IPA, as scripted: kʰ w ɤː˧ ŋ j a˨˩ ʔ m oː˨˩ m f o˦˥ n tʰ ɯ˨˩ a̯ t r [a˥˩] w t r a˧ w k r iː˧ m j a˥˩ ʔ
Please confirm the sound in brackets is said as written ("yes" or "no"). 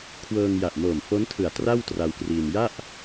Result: yes